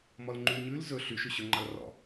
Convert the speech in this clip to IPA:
m ɔ l ŋ͡ǃ y l ɲ ʉ l z ɵ ɬ y ʃ ʉ ɕ ɵ ŋ͡ǃ ɑ l r ɔ̰

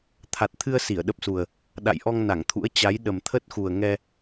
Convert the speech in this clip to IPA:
t̪ʰ a˨˩ t̚ t̪ʰ ɨ˧ ə̯ s i˧˩ ə̯ ɗ ə˦˥ p̚ s u˨˩ ə̯ | ɗ a̰˧˨ j ʔ ɔ˧ ŋ n a˧˩ ŋ t̪ʰ ṵ˧˥ ə̯ t͡ɕ a˨˦ j ɗ ə˨˩ m t̪ʰ ə˦˥ t̚ x u˨˩ ə̯ ŋ ɛ˧

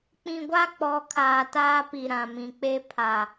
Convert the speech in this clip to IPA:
k͡p ĩ˨ ɡʷ a˦ k͡p ɔ˨˦ kʰ aː˨ t aː˦ p i˨ ɾ ã˨ m ĩ˨ k͡p e˦ pʰ a˨

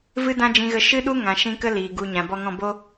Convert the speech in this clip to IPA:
v ɨ˦ d ã˦ d͡ʒ ĩ˦ ɣ ə˦ ʃ ɨ˦ ɗ u˦ ŋ ã˧ ʃ ĩ˦ k ə˦ l iː˨ ɡ u˨ ɲ ã˨ b ɔ˧ ŋ ɔ̃˦˨ b o˧

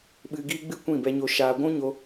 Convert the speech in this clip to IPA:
ɓ ɨ˧ ɡ iː˦ ɡ͡b ɨ˦ kʷ ĩ˦˨ b ɛ˧ ɲ o˧ ʃ aː˧ ɡʷ ũ˦ ɲ o˧

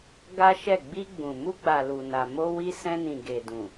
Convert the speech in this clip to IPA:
ɡ a˦ ʃ ɛ˦˨ ɡ͡b i˧ ɡ͡b ũ˨ m u˧ ɡ͡b a˨ l u˨ n a˨ m o˧ w i˧ s ɛ̃˧ n ĩ˨ ɡ e˨ d ũ˨

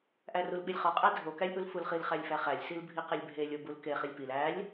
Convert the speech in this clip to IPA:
ʔ æ r u l ɓ i lʲ χ ɒ qʼ æ dʱ o k æ lʲ ʔ u l f u l χ i l χ æ lʲ f æ χ æ lʲ s i l bʱ i q e lʲ bʱ e lʲ o b u l k e χ i lʲ p i l æ lʲ

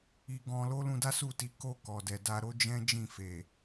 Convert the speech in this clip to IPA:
i˧ ɡ ɔ̃˧ l o˦ l ũ˧ d a˦ s u˦˨ t i˨˦ k o˦˨ k ɔ˨ d ɛ˨ d a˧ ɾ o˦ d͡ʒ ɛ̃˦ d͡ʒ ĩ˦˨ f e˨

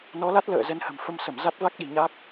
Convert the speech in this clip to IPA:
n ɔ˨˦ l a˦˥ t̚ l ə̰ː˧˨ z ɛ˨˦ n h ə̤˨˩ m f ə˧ m s ə˧˩ m z a˦˥ t̚ v a˦˥ k̚ ɗ i̤˨˩ ɲ a˦˥ k̚

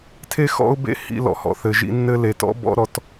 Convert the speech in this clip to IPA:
tʰ e˦ x ɔ̰˦ ʊ̯ b ḛ˦ h ḭ˧ l ɔ̰˨ h ɔ̰˨ θ ɘ˨ ʒ ḭ˧ nː ɘ˦ l e˨ t ɔ̰˦ b ɔ̰˦ ɾ ɔ˧ t

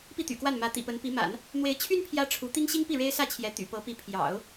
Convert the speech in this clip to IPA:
p i˥˩ t̪ y̰˨˩ k w a˥˩ n m ä˧˥ t̪ ḭ˨˩ p ə˧˥ n p i˧˥ m a̰˨˩˦ n | n̪ w e˧˥ ɪ̯ t͡ɕʰ y˥ n pʰ j ä˥ ʈ͡ʂʰ u˧˥ t̪ i˥ ŋ ɕ i˥ ŋ p i˥˩ ɻ e˥ ɪ̯ s ä˥˩ t͡ɕʰ j ɛ˧˥ t̪ y̰˨˩ p ɤ˧˥ p i˧˥ pʰ j ɑ̰˨˩˦ ʊ̯

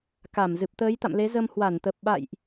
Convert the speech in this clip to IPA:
k a˧˩ m z ɨ˨˩ p̚ t̪ əː˨˦ j t̪ a̰˧˨ m l e˨˦ z ə˧ m h w a˧˩ n t̪ ə˨˩ p̚ ɓ a̰˧˨ j ʔ

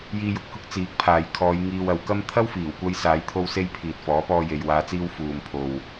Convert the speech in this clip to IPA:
j iː˧ j ʊ˨ k̚ h ʊ˥ k̚ t͡s iː˨˥ k̚ pʰ aː˨ j kʰ ɔː˨˧ j ŋ iː˧ w ɐ˨˧ w k ɐ˥ m t̪ʰ ɐ˥ w f iː˨˩ w kʷ ɐ˧ j s aː˨˧ j t̪ʰ o˧ w s e˧ j pʰ iː˨ t̚ f ɔː˨˥ p ɔː˧ j e˨ j w aː˨˧ t͡s iː˧ w f uː˨ m pʰ o˨ w

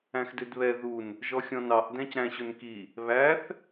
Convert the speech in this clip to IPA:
æ̃ x d ø d β ɛ ð u n | ʒ ɔ xʲ ɔ̃ n ɑ ʔ d æ̃ c ɾ æ̃ ɕ ɵ n k i | β æ θ

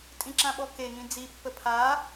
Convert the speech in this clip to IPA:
tʼ ĩ ǁ ã ɓ ɔ k e ŋ ĩ d͡z i pː ə pʰ a

